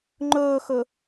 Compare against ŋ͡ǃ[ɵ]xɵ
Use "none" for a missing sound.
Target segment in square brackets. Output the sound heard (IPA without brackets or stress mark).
ɵː